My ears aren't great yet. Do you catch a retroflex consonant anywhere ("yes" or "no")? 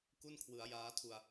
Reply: no